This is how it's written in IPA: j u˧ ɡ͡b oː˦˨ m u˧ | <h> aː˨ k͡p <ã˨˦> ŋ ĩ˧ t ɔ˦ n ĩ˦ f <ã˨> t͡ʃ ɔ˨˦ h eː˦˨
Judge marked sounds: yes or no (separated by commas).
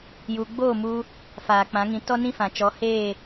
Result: no, yes, yes